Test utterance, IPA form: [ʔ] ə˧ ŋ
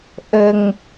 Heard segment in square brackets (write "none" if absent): ʔ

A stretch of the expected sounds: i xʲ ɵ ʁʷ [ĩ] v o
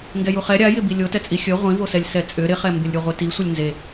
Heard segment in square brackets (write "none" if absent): ĩ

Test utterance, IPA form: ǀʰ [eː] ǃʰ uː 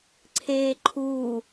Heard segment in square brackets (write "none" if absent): eː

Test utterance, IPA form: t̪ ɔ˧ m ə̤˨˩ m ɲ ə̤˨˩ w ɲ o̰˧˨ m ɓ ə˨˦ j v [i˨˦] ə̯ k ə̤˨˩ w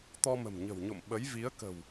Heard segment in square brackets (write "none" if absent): i˨˦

